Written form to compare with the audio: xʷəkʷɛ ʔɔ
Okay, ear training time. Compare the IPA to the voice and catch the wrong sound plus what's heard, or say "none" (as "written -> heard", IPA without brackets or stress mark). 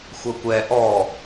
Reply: none